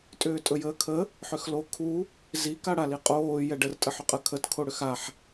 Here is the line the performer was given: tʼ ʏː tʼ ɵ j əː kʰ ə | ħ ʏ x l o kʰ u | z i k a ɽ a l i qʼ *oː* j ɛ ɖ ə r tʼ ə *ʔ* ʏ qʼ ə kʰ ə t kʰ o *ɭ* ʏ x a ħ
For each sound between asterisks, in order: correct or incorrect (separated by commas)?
correct, incorrect, incorrect